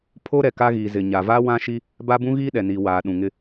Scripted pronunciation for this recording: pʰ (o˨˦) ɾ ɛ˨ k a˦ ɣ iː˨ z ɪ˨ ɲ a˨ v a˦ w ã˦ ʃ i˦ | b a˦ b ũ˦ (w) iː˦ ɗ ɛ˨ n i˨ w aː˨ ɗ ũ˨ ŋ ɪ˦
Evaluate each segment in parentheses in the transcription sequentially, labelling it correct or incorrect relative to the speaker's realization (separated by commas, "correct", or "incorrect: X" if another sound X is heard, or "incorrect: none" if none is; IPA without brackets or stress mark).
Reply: incorrect: o˦, incorrect: ɣ